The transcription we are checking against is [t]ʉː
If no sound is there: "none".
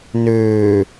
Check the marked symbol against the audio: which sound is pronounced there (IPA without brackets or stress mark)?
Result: n